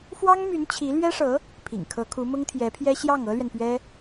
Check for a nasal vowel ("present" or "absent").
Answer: absent